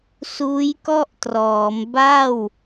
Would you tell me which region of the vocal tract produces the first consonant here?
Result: tongue tip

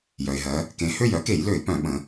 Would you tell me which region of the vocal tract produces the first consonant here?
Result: palate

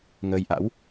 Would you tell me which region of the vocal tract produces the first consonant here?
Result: velum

